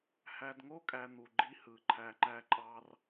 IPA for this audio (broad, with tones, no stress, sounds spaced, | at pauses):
h æ˨ d ŋ o˦ kʼ æ˨ n̪ u˨ ɡ͡ǃ i˦ h ɯ˨ ǃʰ æ˨ ŋ͡ǃ æ˦ ǃʼ ɑ˦ r